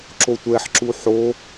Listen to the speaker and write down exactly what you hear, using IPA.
ǁ o tʷ ɛ ħ ǁ u ħ o

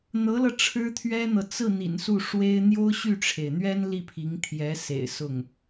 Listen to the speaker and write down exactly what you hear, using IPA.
n̪ ɤ˧˥ l ɤ˧ ʈ͡ʂʰ ɻ̩˥ t̪ʰ ɥ ɛ˥ n̪ ɤ˨ t͡s ɹ̩˥˩ n̪ ḭ˨˩ n s u˥˩ ʂ w e˥ ɪ̯ n̪ j o˥ ʊ̯ ɕ y˥˩ ʈ͡ʂʰ e˩ ɪ̯ n̪ ɥ ɛ˥ n l i˥˩ pʰ i˧˥ ŋ t̪ʰ j ɛ˧˥ s ḛ˨˩ ɪ̯ s ʊ˥˩ ŋ

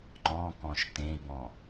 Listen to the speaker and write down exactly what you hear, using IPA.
ŋ͡ǃ ɔ̃ k ɔ̃ ʃ t ẽ i̯ b ɔ̃

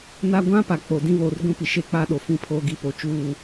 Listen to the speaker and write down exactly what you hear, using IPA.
n a˦ ɡʷ ã˦ p a˨ k͡p o˨ d ĩ˦ β oː˨ r ɡʷ ĩ˦ p i˨ ʃ e˦ k͡p a˦ ɗ o˨ f ĩ˦ pʰ oː˦ ɡ i˦ p o˨ t͡ʃ uː˦˨

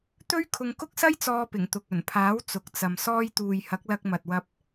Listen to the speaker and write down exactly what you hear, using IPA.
t̪ ɵ˥ ɥ kʰ ʊ˧ ŋ k ʊ˥ k̚ s ɐ˥ j t͡s ɔː˧ p ɪ˨˩ ŋ t̪ ʊ˨ k̚ ɵ˨˩ n pʰ aː˨˥ w t͡s ʊ˨ k̚ t͡s ɐ˨ m s ɔː˧ j t̪ uː˨ j h ɐ˨˥ k̚ l ɐ˧ k̚ m ɐ˨ t̚ w ɐ˧ p̚

